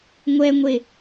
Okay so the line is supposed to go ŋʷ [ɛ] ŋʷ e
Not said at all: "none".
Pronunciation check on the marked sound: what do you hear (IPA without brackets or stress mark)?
ɛ